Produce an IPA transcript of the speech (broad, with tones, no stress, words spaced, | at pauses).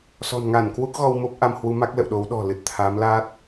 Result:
sɔ̤˨˩nŋa˧˩nkwu˦˥k̚ɣɔ˧w mo˦˥p̚ ʔa˧mhwu˧ ma˦˥k̚lə̰˧˨wɗo˨˦w ɗɔ̤˨˩lɨ˨˩t̚ t̪ʰa˨˦mla˦˥t̚